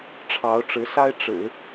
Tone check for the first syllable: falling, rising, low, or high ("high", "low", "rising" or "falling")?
rising